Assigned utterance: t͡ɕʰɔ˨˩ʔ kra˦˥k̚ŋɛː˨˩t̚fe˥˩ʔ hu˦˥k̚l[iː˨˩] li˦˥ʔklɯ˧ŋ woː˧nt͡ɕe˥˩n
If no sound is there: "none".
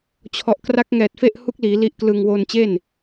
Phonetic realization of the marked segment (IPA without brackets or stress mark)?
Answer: iː˩˦